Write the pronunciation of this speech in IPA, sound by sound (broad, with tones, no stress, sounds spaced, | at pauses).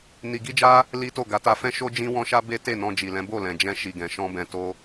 n i˧ ɡ i˦ d͡ʒ a˦ | l i˦ t o˦˨ ɡ a˨˦ t a˧ f ɛ̃˦ ʃ o˦ d͡ʒ ĩ˦ w ɔ̃˦ ʃ a˦ b e˦ t e˦˨ n ɔ̃˧ d͡ʒ i˨ l ɛ̃˨˦ b o˦˨ l ɛ̃˨ d͡ʒ ɛ̃˧ ʃ i˨ ɡ ɛ̃˨ ʃ ɔ̃˧ b ɛ̃˨ t o˧